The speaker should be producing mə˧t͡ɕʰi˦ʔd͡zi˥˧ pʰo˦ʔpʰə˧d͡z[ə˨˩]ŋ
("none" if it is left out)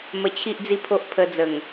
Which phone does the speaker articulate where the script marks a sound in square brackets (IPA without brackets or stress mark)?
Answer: ə˨˩